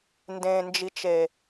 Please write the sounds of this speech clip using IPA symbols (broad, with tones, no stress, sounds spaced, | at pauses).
n d ẽ˨ n d͡ʒ i˨ t͡ʃ e˨